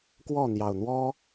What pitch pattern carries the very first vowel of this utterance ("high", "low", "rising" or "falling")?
falling